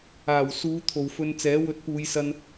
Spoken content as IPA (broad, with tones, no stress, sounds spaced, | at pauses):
aː˨˩ w s uː˨˧ t̪ʰ o˨ w f ɵ˧ n t͡s ɛː˨˥ w ɵ˨˥ t̚ p uː˨˧ j s ɐ˧ n